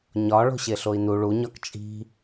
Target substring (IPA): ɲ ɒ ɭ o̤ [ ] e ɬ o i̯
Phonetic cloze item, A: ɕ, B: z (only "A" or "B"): A